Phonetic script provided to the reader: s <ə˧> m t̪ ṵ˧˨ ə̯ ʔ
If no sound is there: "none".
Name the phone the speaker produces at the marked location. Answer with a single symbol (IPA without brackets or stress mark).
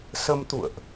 ə˧